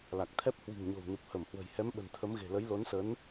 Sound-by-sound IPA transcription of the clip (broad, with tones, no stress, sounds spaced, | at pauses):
l a˨˩ k̚ t̪ʰ ɛ˦˥ p̚ h w i̤˨˩ ŋ ɲ o̤˨˩ w n u˨˩ p̚ h ə˧˩ m h w ə̤˨˩ j h ɛ˨˦ m ɓ ə̤˨˩ n t̪ʰ ə˨˦ m ɣ e̤˨˩ l ə˨˦ j l o˨˦ n s ə˨˦ n